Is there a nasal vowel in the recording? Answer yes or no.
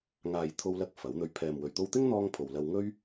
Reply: no